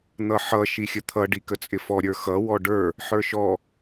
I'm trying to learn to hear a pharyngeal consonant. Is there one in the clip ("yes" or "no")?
yes